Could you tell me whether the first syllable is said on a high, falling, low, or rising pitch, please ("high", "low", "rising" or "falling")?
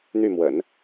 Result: falling